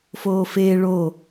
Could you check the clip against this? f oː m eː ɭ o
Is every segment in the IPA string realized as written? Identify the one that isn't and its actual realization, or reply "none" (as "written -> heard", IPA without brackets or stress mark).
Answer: m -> f